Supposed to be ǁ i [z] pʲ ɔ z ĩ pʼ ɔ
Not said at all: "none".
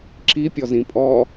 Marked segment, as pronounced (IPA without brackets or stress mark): none